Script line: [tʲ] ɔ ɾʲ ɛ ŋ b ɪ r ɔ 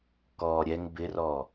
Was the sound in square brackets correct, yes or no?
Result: no